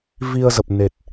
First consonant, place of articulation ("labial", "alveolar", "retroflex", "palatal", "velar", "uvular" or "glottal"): labial